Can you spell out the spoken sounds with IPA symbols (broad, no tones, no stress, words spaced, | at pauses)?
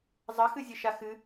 zˤɐxɨ zʲɘʃaxɨ